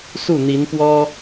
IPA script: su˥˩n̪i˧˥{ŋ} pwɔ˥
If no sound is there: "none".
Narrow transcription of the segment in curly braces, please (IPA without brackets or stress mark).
n